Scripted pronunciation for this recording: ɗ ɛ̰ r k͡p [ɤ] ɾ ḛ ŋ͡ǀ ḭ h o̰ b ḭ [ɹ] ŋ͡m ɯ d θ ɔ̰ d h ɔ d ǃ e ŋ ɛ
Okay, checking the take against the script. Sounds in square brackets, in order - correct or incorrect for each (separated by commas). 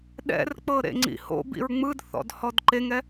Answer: correct, correct